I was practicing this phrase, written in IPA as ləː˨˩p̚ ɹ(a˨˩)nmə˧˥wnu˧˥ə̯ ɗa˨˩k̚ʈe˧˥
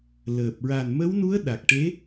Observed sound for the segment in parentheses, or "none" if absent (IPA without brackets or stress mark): a˨˩